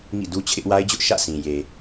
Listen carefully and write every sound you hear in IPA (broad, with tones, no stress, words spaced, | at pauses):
ŋḭ˦˨du˦t͡ɕʰɪ˦ʔ wa˦ɪ̯d͡ʑʊ˦ʔ ʃä̰˦˨sĩ˨ je˨